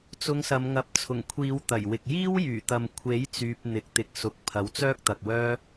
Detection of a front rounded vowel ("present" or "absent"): present